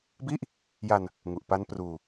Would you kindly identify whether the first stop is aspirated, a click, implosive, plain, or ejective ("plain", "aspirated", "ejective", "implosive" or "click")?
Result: plain